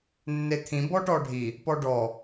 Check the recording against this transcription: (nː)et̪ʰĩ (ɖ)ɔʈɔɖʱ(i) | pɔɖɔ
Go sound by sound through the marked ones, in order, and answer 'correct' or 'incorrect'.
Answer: correct, incorrect, correct

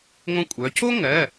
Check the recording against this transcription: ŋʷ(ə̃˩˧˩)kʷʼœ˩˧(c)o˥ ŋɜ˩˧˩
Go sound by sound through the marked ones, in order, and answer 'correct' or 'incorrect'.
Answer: incorrect, correct

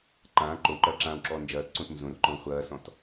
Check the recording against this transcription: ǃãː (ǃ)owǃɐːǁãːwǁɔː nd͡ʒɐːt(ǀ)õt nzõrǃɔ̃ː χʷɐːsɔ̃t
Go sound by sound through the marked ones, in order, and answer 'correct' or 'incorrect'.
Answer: correct, correct

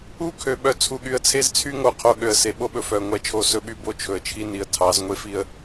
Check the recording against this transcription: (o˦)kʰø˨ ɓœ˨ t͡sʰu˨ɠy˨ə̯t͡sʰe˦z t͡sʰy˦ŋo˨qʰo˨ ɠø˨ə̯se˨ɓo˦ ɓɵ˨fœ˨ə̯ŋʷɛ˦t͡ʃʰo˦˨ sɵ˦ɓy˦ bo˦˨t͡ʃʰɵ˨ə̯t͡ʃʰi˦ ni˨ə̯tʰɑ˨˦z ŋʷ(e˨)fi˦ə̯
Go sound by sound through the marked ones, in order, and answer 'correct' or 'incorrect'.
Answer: incorrect, incorrect

